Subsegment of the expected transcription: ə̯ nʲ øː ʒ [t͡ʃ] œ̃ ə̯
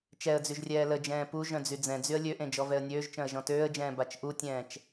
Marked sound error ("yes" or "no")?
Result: no